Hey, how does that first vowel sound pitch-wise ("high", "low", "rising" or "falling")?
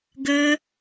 high